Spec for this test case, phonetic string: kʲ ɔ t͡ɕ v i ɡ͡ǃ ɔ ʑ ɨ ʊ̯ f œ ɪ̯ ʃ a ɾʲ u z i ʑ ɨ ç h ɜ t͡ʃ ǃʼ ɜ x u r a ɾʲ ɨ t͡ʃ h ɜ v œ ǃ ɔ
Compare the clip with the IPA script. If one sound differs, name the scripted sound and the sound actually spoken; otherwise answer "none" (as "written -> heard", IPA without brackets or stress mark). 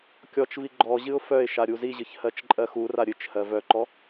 t͡ɕ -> t͡ʃ